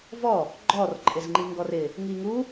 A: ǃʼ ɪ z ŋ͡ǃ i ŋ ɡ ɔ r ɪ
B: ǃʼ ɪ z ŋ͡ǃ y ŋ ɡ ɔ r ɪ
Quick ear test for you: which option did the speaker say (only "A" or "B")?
A